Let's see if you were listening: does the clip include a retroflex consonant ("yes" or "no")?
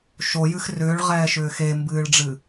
yes